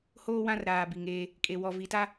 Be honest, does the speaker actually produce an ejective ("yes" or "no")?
yes